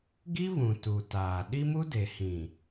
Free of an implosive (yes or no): no